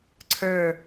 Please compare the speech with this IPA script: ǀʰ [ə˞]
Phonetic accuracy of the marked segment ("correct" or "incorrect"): correct